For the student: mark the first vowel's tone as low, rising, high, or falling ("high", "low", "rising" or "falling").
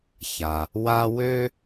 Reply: low